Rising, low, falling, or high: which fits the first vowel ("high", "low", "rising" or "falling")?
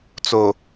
low